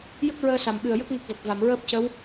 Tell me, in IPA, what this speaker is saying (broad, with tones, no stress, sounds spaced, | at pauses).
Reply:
j ə˦˥ k̚ ɹ əː˧ s a˨˩ m ɓ ɨ˨˩ ə̯ j ə˦˥ k̚ ŋ ə˦˥ k̚ v ə˨˩ k̚ v a˨˩˨ m ɹ əː˦˥ p̚ c ə˧˥ w